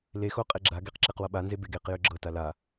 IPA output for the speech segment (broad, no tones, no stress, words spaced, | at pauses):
lexo qʼeɡ͡ǁaɡeq ǁeqwʌɓanze beɡeqjø ɡ͡ǁɤta la